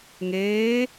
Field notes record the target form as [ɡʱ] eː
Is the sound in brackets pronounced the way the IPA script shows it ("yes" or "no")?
no